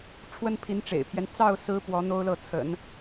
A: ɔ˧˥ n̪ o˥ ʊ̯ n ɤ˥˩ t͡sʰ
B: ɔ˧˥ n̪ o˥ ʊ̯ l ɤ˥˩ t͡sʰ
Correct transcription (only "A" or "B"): B